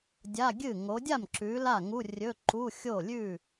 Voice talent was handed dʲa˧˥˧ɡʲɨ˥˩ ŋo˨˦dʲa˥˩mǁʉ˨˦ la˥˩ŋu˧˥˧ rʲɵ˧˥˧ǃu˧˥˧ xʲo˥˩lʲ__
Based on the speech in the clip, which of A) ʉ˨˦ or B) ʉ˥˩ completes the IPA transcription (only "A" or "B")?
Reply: B